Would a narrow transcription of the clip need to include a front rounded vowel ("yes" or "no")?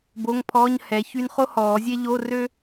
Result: yes